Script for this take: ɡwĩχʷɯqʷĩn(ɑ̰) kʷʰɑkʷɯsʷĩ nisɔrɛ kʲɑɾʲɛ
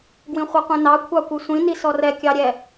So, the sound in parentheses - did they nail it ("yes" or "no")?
no